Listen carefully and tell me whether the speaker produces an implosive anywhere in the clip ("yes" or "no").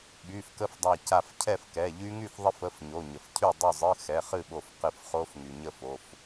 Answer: yes